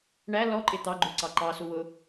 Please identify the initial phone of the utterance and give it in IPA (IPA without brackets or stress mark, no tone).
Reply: ɳ